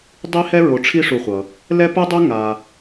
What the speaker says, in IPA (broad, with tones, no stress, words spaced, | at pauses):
dˤi˥hɛ˥ ɹo˨ʈ͡ʂʰi˦ʂu˨χʷʌ˩ | lɛ˥pɯ˥dˤu˥ ŋa˨